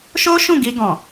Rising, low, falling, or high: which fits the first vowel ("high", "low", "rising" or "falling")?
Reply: high